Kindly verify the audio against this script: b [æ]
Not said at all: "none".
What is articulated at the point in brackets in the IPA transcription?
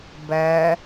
æ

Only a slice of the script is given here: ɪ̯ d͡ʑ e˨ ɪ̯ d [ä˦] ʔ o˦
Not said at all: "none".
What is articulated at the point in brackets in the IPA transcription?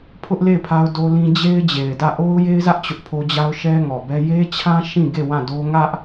ä˦˨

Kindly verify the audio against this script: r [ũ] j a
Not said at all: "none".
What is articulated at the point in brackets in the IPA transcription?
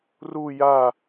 u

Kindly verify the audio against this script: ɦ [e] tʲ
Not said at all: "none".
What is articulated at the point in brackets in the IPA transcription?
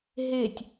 e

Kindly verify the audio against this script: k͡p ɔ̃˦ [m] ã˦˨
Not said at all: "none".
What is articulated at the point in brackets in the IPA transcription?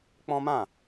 m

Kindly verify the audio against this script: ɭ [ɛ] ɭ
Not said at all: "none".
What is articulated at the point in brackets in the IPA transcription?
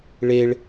e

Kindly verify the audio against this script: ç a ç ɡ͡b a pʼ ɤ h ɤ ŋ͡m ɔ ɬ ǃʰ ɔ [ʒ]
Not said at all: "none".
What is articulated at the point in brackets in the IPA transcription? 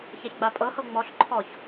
ç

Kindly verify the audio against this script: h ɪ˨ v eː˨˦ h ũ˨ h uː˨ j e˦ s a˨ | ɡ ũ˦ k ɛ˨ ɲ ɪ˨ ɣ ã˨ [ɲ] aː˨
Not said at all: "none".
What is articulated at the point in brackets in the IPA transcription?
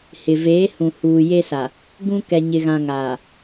ŋ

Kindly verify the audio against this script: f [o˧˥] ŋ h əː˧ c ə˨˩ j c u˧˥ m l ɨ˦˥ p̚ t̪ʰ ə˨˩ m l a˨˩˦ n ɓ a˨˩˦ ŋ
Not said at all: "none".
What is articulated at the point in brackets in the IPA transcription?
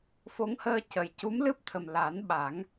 o˧˥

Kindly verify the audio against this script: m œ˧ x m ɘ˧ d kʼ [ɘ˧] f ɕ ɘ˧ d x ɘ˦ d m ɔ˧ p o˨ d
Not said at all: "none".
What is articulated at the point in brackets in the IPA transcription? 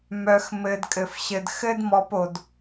ɘ˧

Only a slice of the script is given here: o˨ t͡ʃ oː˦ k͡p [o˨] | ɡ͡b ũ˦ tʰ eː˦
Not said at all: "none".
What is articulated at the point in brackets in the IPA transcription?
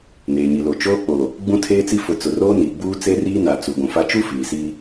o˨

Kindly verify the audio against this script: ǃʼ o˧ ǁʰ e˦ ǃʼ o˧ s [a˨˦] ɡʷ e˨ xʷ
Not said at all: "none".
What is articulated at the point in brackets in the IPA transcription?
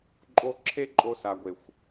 a˨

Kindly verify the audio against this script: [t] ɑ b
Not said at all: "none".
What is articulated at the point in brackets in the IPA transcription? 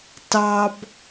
t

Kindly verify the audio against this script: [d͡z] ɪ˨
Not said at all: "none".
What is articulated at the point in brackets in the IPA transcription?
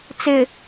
t͡s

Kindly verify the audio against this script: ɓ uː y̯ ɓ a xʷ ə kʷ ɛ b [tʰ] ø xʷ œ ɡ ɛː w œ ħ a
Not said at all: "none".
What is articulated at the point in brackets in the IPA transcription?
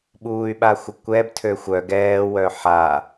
tʰ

